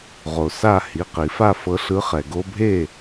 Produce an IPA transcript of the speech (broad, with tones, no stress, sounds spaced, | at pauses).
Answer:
ʁ o˩ s a˥˨ h i˩˧˩ q i˨˩˦ f a˥˨ f ɤ˨˦ ɬ ɯ˨˦ χ ɛ˩ ɡ o˦ bʱ e˥˨